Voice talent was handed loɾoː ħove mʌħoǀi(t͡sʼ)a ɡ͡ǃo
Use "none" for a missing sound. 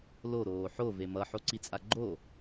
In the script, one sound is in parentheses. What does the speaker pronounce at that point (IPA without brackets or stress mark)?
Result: t͡sʼ